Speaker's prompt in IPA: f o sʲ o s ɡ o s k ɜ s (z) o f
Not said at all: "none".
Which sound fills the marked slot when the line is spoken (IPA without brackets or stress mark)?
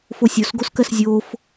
zʲ